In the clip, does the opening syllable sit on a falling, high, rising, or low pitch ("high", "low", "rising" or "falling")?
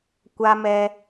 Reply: high